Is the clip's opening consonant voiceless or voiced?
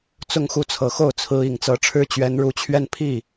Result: voiceless